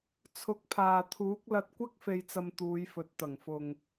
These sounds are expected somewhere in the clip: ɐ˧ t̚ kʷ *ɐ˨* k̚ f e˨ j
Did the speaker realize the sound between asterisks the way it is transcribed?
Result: no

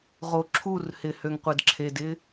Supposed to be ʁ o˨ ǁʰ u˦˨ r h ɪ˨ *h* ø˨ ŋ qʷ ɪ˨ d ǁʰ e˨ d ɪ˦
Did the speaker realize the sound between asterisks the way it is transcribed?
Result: yes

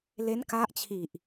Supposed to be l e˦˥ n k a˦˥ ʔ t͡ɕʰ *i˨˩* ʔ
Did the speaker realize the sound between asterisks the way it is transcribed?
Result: yes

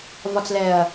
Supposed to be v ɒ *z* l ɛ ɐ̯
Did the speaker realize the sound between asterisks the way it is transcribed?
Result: no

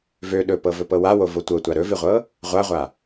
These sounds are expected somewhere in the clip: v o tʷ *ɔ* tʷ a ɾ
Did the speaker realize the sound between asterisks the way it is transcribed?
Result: no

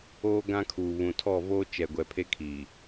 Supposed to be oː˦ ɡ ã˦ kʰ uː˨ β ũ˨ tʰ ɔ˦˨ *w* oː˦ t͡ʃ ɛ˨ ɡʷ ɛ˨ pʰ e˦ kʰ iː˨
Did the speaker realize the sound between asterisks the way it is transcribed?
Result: no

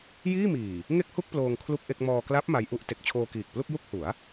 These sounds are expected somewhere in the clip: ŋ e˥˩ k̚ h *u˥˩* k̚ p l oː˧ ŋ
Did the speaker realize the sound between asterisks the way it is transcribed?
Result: yes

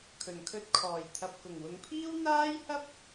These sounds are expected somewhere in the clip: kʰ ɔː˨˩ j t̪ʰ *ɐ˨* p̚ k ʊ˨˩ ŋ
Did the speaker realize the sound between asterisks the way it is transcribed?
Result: yes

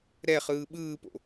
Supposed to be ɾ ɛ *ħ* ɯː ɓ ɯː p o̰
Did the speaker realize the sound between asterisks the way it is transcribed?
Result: no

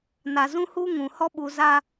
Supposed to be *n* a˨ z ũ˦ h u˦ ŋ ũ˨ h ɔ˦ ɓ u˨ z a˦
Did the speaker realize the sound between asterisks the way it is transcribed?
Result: yes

